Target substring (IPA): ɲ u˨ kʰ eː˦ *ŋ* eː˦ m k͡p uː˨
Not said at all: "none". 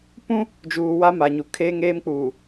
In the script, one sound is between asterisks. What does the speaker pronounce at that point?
ŋ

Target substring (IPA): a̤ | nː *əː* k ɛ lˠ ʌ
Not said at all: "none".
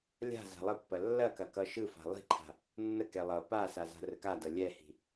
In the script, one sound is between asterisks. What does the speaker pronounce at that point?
ə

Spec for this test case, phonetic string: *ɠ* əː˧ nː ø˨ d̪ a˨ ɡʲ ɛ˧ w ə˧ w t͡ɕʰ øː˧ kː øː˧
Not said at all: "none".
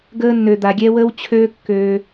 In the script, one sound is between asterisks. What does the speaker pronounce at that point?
ɡ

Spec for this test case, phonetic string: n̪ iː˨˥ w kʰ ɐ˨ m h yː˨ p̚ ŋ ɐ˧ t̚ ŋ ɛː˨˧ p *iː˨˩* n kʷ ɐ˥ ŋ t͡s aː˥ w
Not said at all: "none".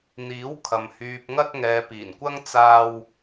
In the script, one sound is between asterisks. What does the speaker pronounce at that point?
iː˨˩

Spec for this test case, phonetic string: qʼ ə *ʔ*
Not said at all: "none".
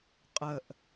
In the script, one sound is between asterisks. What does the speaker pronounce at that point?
ʔ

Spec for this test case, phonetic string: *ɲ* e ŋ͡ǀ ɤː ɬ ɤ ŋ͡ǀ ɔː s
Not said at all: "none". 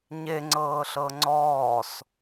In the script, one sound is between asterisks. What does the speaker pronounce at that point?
ɲ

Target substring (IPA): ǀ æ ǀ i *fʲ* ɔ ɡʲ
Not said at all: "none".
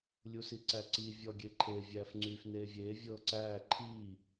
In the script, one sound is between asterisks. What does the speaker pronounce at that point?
vʲ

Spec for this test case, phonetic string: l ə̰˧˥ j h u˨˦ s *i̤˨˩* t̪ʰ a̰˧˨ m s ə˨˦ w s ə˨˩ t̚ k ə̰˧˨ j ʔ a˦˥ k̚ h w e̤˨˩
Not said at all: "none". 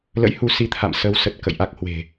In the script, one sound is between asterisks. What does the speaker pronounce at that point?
i˨˦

